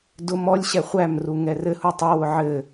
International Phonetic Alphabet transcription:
dʊ mɔlʲɕɛ χʷæmru ŋɛrɘhu tˤɐwʊ ʕɘ

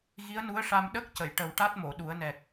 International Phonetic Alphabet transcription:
ɣi˧˥ə̯nu˧˥ə̯ʂa˧m ɗə˦˥k̚ cə˨˩˨j ʈə˨˩wʈa˦˥t̚mo˨˩˨ ɗu˨˩˦ə̯nɛ˨˩k̚

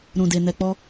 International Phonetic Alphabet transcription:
ɾũ˨de˨ nɛ˨k͡pɔ˧

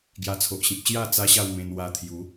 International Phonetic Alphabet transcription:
ɡja˧t͡sʰo˨ʔɕĩ˨p̚ ɕja˥˧ t͡sa˦ɕa˥˧wmẽ˧nwa˧ t̪ʰju˨˦

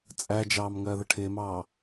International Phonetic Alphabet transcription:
t͡sʼæd͡ʒɑːm ŋɜːðəʈʰɪːmɑː

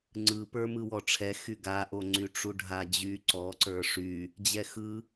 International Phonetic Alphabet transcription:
ŋ͡ǀɯpə˞ mɯwɔʈ͡ʂʰɛ xyɡaʔoŋ͡ǀy ʈ͡ʂuɖʱad͡ʑy ǀɔǀə˞ ʂy | d͡ʑɛxɯ

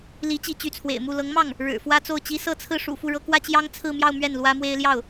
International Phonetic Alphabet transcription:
li˧˥ t͡ɕi˧˥t͡ɕy˧˥t͡sʰwḛ˨˩ɪ̯mu˥˩ lɤ˧˥ŋmɑ˥˩ŋ | ɻɻ̩˨˩fwä˥t͡so˥˩ʊ̯t͡ɕi˥ sɤ˥˧t͡sʰɹ̩˥˩ʂṵ˨˩ fu˥˩ɻɤ˥ kwä˥t͡ɕjɑ˥ŋt͡sʰɹ̩˥˧mjɑ˥˧ʊ̯ mɥɛ˥˩nlwä˥mwe˥ɪ̯ ljɑ˥˩ʊ̯

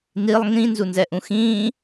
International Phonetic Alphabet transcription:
nilˠ ŋĩ nzunzɛʔũxĩː

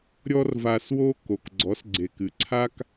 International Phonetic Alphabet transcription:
ɾʲɔ˥rva˧swo˥ ko˩kɡ͡ǀɔ˩˥sɡ͡ǀe˩k ɨ˩ǀʰa˥k

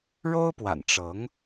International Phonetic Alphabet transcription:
ɻo˥ʊ̯pwa̰˨˩nʈ͡ʂɤ˧˥ŋ

